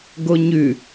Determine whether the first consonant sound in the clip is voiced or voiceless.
voiced